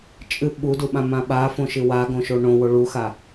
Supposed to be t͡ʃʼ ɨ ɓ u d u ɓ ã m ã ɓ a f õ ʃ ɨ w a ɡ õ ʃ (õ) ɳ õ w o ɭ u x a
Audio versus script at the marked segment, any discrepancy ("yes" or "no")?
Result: yes